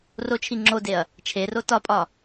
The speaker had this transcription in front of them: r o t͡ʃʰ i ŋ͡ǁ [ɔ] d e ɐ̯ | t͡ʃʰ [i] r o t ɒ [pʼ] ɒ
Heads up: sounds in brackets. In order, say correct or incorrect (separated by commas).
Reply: incorrect, incorrect, correct